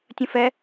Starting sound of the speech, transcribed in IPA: tʲ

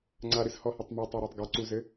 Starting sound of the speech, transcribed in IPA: ŋ͡ǀ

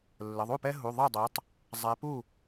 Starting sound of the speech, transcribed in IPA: lː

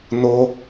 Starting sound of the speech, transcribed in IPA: n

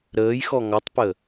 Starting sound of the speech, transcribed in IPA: ɾ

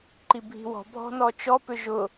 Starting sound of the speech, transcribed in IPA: ǃ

